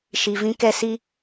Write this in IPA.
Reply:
ʃ i˨ v ĩ˧ k ɛ˧ s i˧

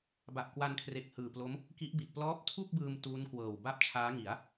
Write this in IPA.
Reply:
b a˨˩ ʔ k w a˧ n kʰ r e˨˩ k̚ h ɯː˨˩ p l o˦˥ m | k i˦˥ ʔ b i˨˩ t̚ p l ɔː˦˥ p̚ tʰ u˥˩ k̚ b ɯː˧ m t uː˦˥ n k w ɤː˨˩ w b a˥˩ p̚ t͡ɕʰ aː˦˥ ŋ i˩˦ a̯

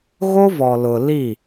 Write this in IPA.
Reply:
ɣ o˦ v ɔ˨ l ʊ˨ l i˦˨

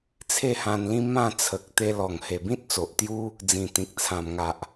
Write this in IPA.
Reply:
t͡sʰ e˥˧ h ã˧ n l ĩ˦ m ã˥˧ t͡sʰ ə˨ k̚ t̪ e˧ l ɔ˨˩ ŋ h e˨˩ b ĩ˦ t̚ t͡s o˨ ʔ t̪ j u˦ | d͡z ĩ˨˩ t̪ ĩ˨ k̚ t͡sʰ ã˨˩ m ŋ a˨ ʔ

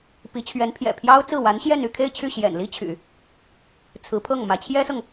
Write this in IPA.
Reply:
p i˧˥ t͡ɕʰ ɥ ɛ˧˥ n pʰ j ɛ̰˨˩ pʰ j ɑ˥ ʊ̯ t͡s ɹ̩˥˩ w a˧˥ n ɕ j ɛ˥˧ n y˥˧ kʰ e˥˧ ɪ̯ t͡ɕʰ y˥˩ ɕ j ɛ̰˨˩ n l i˥ t͡ɕʰ y̰˨˩˦ | t͡sʰ ɹ̩˧˥ pʰ ɤ˥˩ ŋ m ä˧˥ t͡ɕʰ j ɛ˥ s ɤ˨ ŋ

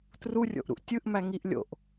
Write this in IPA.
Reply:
t r u rʲ o̰ ʔ ɾ ṵ ʔ tʲ ɯ ʔ m æ ŋ i ʔ lʲ o̰ ʔ

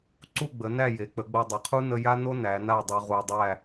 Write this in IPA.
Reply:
ǀ u˥˧ ɡ͡b ə˩˧ n æ˥˧ j e˩˧ k͡p ə˩˧ ɡ͡b o˧ dˤ e˩˧ qʰ u˥ n ə˥ j a˥ n o˥ n æ˩˧ n a˥˧ dˤ u˧ ʁ u˧ dˤ æ˥˧

